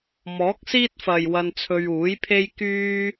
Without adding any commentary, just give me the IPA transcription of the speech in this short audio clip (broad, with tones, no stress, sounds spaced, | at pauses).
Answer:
m ɔː˨˥ k̚ s iː˥ t̚ f ɐ˨ j w ɐ˧ n t͡sʰ ɵ˧ ɥ uː˨˥ j pʰ e˥ j k yː˥